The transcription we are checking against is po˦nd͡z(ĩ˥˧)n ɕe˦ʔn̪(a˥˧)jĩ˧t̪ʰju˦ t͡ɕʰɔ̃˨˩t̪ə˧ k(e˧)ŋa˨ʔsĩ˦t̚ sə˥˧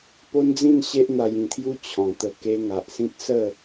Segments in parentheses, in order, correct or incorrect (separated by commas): correct, incorrect, correct